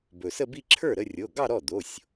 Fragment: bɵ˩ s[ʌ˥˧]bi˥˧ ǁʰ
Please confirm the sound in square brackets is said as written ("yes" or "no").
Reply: no